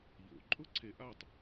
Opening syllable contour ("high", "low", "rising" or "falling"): low